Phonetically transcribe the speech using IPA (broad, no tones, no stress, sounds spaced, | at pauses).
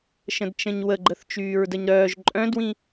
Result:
ʃ ə̃ d t͡ʃ ə̃ ɲ w ə ɡ͡ǃ ə θ t͡ʃ yː ɹ d ə ɲ ɾ œː ʒ ǃʼ œ̃ d w ĩ